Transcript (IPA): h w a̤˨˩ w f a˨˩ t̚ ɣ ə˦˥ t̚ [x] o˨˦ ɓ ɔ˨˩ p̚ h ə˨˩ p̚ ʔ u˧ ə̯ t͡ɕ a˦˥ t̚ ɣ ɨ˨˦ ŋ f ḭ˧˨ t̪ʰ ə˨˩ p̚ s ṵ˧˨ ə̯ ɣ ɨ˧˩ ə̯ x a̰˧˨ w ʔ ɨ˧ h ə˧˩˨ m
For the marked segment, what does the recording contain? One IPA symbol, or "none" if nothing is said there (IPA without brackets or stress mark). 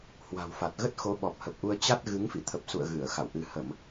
x